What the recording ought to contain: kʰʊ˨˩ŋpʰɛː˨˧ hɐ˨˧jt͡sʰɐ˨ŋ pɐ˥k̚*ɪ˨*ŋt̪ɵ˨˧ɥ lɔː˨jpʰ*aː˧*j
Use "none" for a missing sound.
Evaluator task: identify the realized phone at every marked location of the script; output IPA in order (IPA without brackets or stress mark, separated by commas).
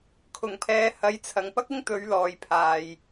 ɪ˥, aː˨